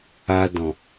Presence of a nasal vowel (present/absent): present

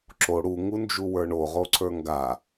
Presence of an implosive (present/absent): absent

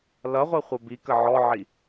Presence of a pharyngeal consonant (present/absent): present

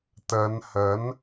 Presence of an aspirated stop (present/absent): absent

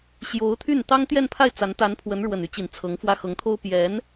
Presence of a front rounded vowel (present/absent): present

